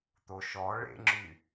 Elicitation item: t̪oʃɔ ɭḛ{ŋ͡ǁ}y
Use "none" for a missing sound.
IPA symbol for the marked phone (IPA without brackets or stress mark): ŋ͡ǁ